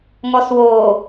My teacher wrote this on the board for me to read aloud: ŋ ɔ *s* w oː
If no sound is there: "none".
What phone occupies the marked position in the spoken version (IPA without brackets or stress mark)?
s